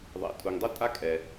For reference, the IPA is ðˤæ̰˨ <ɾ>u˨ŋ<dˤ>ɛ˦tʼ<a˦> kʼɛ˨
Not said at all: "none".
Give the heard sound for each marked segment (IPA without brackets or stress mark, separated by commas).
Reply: tʼ, dˤ, a˦